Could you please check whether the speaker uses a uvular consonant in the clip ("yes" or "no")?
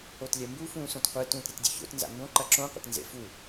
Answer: yes